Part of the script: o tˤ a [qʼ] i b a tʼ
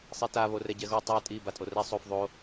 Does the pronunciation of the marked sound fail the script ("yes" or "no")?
yes